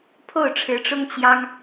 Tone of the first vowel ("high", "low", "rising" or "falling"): falling